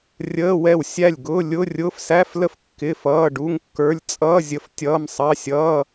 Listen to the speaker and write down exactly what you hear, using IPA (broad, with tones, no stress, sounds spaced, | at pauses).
rʲ əː˧˥˧ w ɛ˥˩ w sʲ æ˥˩ lʲ ɡ ʊː˧˥˧ lʲ ʊ˧˥˧ rʲ ʊː˧˥˧ f s æ˧˥˧ f l ə˥˩ f kː ɪ˧˥˧ f ʌː˧˥˧ ɖ u˧˥˧ ŋ kː ə˞˧˥˧ lʲ t͡sʼ ʌː˧˥˧ zʲ ə˧˥˧ f tʲ ʌː˧˥˧ m sˤ ɑ˧˥˧ sʲ ʌː˧˥˧